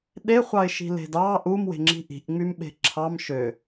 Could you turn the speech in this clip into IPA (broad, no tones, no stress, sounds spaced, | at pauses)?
ɗ e χʷ ɑ ɪ̯ ʃ i̤ l e̤ d ɑ ʔ u m w e̤ ŋ͡ǁ i̤ ʔ i̤ ʔ ŋ͡m y m ɓ e̤ ǁʰ ɑ m ʃ ø